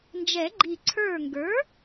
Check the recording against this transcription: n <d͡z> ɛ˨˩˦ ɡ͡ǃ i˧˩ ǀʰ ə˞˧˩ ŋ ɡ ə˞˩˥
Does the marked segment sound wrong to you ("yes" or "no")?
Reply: yes